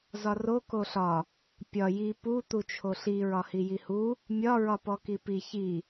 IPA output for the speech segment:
z ɒ r o k o ɬ ɒ | pʲ ɒ j i p u t̪ u t͡ʃʰ o ɬ i ɹ ɒ h i j i h u | mʲ ɒ ɹ ɒ p ɔ k i p i ç i

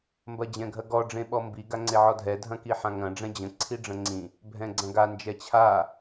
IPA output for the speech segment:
m b ɐ d͡ʑ ɛ̃ ɡʱ ɐ ɡ ɔ ɖ͡ʐ ẽ ɓ ɔ m b i ɡ a ŋ͡ǀ e ʕ ɔ dʱ ɛ dʱ ɐ̃ k i ħ ã ŋ ɐ̃ ɖ͡ʐ ɛ̃ d͡ʑ ə̃ ǀʰ i ɖ͡ʐ ə̃ ŋ͡ǀ ĩ | bʱ ɛ̃ ɡ͡ǀ ɐ̃ ɡ a n d͡ʒ ɛ t͡ɕʰ a

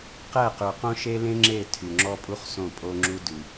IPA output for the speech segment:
q ɛ˦˨ q ʉ˨ q õ˦ ʃ e˦ l ẽ˦ ŋ͡ǁ e˦˨ tʰ y˨ ŋ͡ǁ ɔ˦ pʼ u˦ χ s õ˦˨ pʼ o˦ ŋ͡ǁ u˦ d ʉ˨

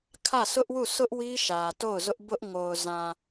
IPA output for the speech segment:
kʰ ä˦˨ s ʊ˦ ʔ w u˦˨ s ʊ˦ ʔ w i˦ ʃ ä˨ t o˦˨ ʊ̯ z ʊ˦ ʔ b ʊ˦ ʔ ŋ o˨ ʊ̯ z ã˨

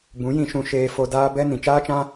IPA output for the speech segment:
b ũ˨˦ j ĩ˧ ʃ ũ˧ ʃ eː˧ f o˧ d aː˦ b ɛ˦ n ĩ˨ t͡ʃ aː˦ t͡ʃ ã˦

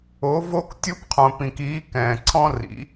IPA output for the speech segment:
o˧˥ v o˥ k tʲ u˥ p qʰ õ˧ p ĩ˧ k iː˧˥ k ɛ̃ː˧ ǀʰ ɔ̃˥ r ḭ˧˥

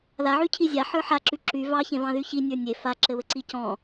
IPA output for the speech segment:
ð a ʕ y cʰ i zʲ a ħ ə˞ ħ a ǁ y ǁ y v ɑ ç ẽ v ɑ̃ ð y ç i nʲ ə˞ nʲ e f a ǁ ɘ β ɘ ǀ i c ɔ̃

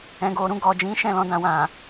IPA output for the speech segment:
ɛ̃˨ ɡ o˨ ɾ ũ˧ ɡ ɔ˨ d͡ʒ ĩ˨˦ ʃ ɛ̃˦˨ l ɔ̃˧ d ã˨ w ã˨

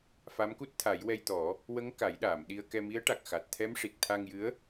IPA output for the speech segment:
f a˧˥ m k u˦˥ t̚ t̪ʰ a˨˩˦ j w ɛ˧ j t̪ ɔ˨˩˦ | w ə˧˥ ŋ k a˨˩˦ j ɗ aː˨˩˨ m ɗ i˧ ə̯ k ɛ˧ m i˧˥ ə̯ ʈ a˨˩ k̚ x a˨˩ t̚ t̪ʰ ɛ˧˥ m ʂ i˨˩ k̚ t̪ʰ a˧ ŋ j ɨ˧˥ ə̯

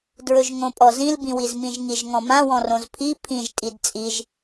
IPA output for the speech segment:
d ɹ ɵ ʒ ŋ õ pʼ ɔ z ĩ l b ĩ w i z m ĩ ʒ ŋ i ʒ ŋ ɔ̃ m ã w ɔ̃ r õ z pʰ i pʰ ĩ ʒ tʼ i d t͡sʼ i ʒ

